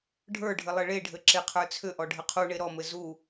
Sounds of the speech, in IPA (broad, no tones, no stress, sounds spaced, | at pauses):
ɖʱ ə˞ ɖʱ ɘ lˠ ɘ ɭ e ɖʱ ɘ ǁ e qʰ ə˞ t͡sʰ ʏ ʔ ɔ ɖʱ ɘ qʰ u ɳ e ɾ ɔ m ɘ z u